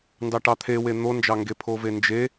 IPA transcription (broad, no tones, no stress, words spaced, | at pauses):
ndɑʈɑt̪ʰewe n̪ond͡ʒɑŋɡe pʰovend͡ʒe